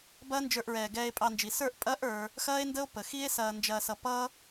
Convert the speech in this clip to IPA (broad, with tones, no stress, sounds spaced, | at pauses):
b ɐː˦ n d͡ʒ ə˞˧ ʔ ɹ ɛː˨ ɡ ɛː˧ e̯ pʼ ɑ˧ n d͡ʒ i˨ s ə˞˦˨ ʔ pʼ ɐː˦ ʔ ə˞˧ | x ɐː˦ e̯ n d ə˦ o̯ p ə˨ x i˦ e̯ s ɐː˧ n d͡ʒ ɐː˧ s ʌ˧ p ʌ˦